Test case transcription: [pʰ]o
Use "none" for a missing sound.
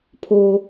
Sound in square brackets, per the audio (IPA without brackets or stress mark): pʰ